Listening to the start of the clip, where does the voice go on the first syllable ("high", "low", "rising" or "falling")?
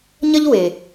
high